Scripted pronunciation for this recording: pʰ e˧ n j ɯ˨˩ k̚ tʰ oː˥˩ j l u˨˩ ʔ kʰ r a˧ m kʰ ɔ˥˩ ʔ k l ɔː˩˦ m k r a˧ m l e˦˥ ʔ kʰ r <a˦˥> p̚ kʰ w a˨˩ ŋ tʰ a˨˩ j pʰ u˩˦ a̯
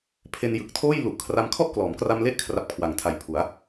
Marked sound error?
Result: yes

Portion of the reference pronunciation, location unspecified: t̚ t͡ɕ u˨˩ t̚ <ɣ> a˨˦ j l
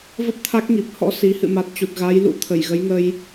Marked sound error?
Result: no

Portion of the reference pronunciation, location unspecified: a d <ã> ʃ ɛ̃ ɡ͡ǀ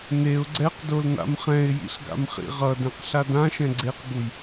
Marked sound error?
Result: no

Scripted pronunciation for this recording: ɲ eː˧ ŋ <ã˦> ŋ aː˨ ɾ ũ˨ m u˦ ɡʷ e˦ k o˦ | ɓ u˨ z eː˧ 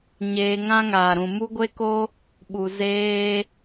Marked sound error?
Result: no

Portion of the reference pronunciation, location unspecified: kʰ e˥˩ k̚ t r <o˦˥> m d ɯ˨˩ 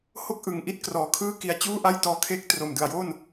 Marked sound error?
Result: yes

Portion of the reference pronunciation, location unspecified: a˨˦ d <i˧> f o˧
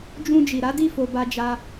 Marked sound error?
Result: yes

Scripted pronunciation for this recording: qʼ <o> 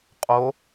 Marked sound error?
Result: no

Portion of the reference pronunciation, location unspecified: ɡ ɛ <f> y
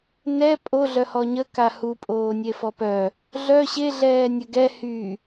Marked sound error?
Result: yes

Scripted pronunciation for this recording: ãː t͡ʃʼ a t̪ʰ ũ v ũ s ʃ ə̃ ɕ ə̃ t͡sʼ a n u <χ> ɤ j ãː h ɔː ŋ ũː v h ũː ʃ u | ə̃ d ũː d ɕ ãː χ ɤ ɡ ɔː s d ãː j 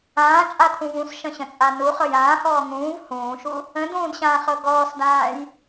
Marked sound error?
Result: no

